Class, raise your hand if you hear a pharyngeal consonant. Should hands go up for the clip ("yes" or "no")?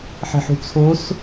yes